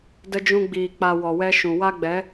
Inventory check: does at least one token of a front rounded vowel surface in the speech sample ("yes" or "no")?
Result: no